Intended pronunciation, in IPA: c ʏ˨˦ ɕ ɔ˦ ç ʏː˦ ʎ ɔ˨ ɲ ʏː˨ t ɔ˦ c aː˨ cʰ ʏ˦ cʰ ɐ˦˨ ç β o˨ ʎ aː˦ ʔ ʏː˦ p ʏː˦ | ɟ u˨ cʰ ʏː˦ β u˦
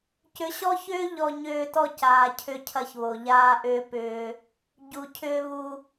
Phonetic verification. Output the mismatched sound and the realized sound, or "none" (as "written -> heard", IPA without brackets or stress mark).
none